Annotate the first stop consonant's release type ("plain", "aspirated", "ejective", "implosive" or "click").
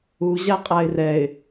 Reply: ejective